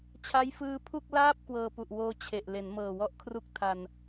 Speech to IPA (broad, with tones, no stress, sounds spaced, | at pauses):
t͡ɕʰ a˦˥ j f ɯː˧ pʰ u˥˩ k̚ l aː˥˩ p̚ k w ɤː˧ p u˨˩ ʔ w oː˦˥ t͡ɕʰ e˨˩ ʔ l e˩˦ n m ɤː˨˩ w ɔ˦˥ ʔ kʰ r u˥˩ k̚ tʰ a˧ n